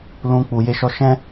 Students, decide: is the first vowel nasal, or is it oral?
nasal